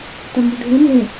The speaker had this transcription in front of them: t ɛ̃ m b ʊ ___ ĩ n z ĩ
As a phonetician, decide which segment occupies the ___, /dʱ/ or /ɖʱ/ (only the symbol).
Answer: ɖʱ